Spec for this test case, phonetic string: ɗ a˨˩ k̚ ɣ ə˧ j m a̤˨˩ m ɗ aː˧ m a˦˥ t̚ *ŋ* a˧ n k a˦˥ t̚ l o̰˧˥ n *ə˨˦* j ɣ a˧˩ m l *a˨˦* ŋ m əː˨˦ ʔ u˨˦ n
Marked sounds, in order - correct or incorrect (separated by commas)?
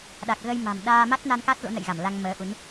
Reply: incorrect, incorrect, incorrect